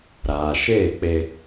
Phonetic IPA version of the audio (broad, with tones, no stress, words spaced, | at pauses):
ɾaː˨ʃeː˦˨k͡pe˧